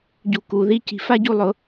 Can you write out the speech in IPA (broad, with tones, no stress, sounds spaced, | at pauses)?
ɟ u˨ k u˨ ð i˦ c i̤˨ f a˦ ɟ u˧ lˠ ʊ˨˦